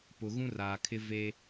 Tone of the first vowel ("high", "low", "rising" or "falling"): low